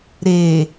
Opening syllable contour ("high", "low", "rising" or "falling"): low